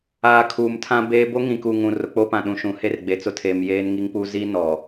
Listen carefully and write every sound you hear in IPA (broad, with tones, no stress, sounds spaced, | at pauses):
aː˨ kʰ uː˨ m tʰ ã˦ b eː˦ b o˦ ŋ ĩ˨ k u˨ ŋ ũ˨ r ʊ˨ k͡p o˦ p ã˨ ɗ ũ˨ ʃ ũ˨ h e˦ r ɡ͡b e˨ t͡s ʊ˦ tʰ eː˨ m j eː˦ n ŋ i˦ ŋ p u˦ z i˦ n ɔ˨